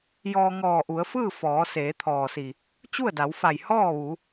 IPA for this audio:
j ɔː˧ ŋ ɔː˧˩ ʔ u˩˧ ə̯ f ɯː˥˨ f ɔː˩˧ s eː˩˧ t̪ʰ ɔː˩ s i˩ | t͡ɕ u˥˨ ə̯ d a˩˧ w f a˧˩ j h ɔː˥˨ ʋ u˩˧

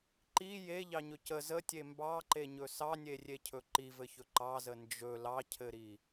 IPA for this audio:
ǃ i j e ʎ ɑ ɲ ɵ c ə z ə tʲ e m b ɑ ǃ e ɲ ɵ s ɑ nʲ e rʲ e cʰ ɵ ǃ i v ɘ ç ɵ ǃ ɑ z ə n d͡ʒ ɵ l ɑ cʰ ɘ ɾ i

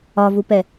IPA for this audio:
ɒ v u p ɛ

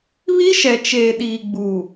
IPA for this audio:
β i˦ ʃ ɛ˨ t͡ʃ eː˨ ɗ iː˨ ɡ͡b uː˨

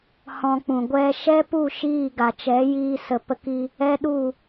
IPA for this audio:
h ɔ̃˧ k͡p ũ˨ ɡʷ ɛ˧ ʃ ɛ˦ p u˦˨ ʃ iː˦˨ ɡ a˨ t͡ʃ ɛ˨˦ j iː˧ s ə˨ p ə˧ k i˧ | ɛ˦ ɗ u˦˨

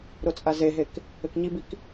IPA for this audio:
ɾ o t͡sʼ a z e ɦ e k | ɘ k ɲ i b i k

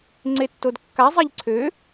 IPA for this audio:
ŋ͡ǀ e tː o d kː a zˤ i ʎ ǀʰ ø

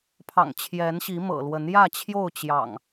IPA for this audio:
pʰ ɑ̰˨˩ ŋ t͡ɕʰ j ɛ˨˦ n ɕ i˨˦ m ɤ̰˨˩ l w ə˨˦ n j ä˥˨ t͡ɕʰ j o˥˨ ʊ̯ t͡ɕ j ɑ̰˨˩ ŋ

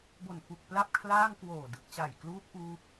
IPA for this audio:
b o˨˩ n f u˨˩ k̚ p l a˥˩ p̚ kʰ l aː˥˩ ŋ k w oː˨˩ d ɯ˨˩ k̚ t͡ɕ a˨˩ j k l uː˦˥ p̚ ʔ uː˦˥ p̚

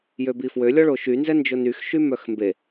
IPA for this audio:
j ø b i f w ø lʲ ɔ ɭ o ʃ y n z ɛ n d͡ʒ o n y x ʃ y m œ x m b e

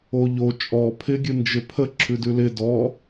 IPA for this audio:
o ʎ o t͡ʃʼ ɔ pʰ ɪ ɡʲ ɨ n d͡ʒ ɪ pʰ ə ǁʰ ʉ d ʉ l ɪ d ɔ

